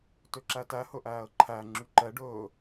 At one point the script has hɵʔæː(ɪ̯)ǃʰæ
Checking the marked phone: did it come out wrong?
yes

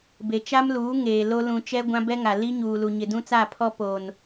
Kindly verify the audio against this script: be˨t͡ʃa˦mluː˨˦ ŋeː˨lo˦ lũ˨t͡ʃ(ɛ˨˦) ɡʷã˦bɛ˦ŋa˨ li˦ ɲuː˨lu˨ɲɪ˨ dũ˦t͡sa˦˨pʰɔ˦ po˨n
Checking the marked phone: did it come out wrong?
yes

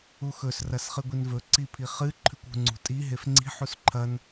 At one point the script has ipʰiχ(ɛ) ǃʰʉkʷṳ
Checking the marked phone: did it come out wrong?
yes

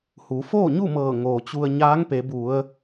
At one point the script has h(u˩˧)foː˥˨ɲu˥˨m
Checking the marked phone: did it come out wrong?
no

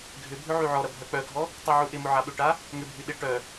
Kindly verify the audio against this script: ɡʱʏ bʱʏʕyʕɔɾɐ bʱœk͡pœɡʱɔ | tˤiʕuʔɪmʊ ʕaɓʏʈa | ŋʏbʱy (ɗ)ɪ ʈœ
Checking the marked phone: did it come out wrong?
no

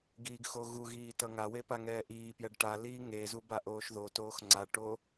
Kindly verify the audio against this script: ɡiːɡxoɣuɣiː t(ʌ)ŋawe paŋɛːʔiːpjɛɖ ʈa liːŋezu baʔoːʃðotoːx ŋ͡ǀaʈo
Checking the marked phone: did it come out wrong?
no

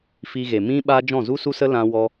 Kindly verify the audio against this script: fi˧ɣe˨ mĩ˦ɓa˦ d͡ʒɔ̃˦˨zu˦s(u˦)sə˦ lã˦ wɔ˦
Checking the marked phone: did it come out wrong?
no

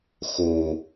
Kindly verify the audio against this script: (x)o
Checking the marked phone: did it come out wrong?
no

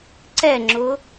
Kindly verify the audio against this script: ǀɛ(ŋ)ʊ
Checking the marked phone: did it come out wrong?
yes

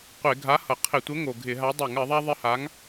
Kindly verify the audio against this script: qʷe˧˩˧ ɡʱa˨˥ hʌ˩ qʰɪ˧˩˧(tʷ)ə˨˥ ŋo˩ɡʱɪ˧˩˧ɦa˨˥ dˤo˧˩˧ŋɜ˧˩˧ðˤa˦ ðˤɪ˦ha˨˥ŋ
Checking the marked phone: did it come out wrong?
no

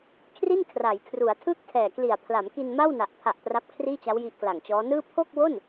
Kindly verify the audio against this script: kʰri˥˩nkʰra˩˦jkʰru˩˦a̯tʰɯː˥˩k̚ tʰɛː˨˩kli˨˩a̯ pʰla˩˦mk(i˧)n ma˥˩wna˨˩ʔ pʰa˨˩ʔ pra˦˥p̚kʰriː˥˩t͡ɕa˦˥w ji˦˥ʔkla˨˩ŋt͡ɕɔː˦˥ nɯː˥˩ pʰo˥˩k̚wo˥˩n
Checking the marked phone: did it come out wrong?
no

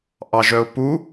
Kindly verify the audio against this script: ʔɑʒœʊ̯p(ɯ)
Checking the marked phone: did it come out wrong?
yes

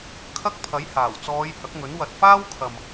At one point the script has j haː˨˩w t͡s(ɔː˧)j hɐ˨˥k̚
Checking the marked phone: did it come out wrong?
yes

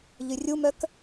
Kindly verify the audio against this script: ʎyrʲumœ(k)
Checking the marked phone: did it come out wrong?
no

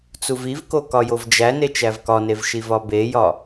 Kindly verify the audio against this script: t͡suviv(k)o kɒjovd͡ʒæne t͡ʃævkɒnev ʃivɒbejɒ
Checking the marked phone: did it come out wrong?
no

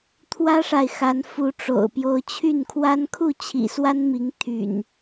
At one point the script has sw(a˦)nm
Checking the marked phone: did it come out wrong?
no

